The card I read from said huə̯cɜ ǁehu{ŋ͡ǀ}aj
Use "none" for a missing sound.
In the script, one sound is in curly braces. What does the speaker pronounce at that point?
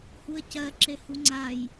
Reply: ŋ͡ǀ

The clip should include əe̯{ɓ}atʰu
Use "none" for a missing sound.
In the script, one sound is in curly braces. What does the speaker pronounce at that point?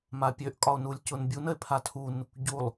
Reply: pʰ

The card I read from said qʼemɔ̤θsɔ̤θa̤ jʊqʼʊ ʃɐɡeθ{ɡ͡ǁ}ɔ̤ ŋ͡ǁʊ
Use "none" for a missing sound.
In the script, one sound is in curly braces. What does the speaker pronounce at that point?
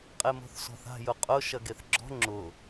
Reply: ɡ͡ǁ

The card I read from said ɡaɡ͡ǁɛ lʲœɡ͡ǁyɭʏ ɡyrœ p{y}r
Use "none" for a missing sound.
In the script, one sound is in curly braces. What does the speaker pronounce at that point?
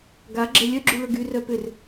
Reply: ʏ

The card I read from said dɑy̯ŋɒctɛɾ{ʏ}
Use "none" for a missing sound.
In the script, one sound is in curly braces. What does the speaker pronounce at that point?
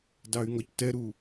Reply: u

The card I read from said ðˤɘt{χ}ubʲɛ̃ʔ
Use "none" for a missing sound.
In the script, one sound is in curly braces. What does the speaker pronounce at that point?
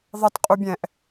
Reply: qʼ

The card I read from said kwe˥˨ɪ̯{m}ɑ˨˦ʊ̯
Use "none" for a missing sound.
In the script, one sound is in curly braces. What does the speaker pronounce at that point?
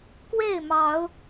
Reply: m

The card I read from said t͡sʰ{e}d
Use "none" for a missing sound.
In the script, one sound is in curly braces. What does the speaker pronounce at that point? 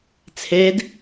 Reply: e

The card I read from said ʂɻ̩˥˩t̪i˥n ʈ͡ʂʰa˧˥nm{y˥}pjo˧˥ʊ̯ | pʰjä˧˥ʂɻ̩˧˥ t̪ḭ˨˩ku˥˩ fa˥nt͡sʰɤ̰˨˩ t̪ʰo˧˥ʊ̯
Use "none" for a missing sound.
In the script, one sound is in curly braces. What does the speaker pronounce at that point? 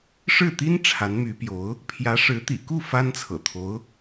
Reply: y˧˥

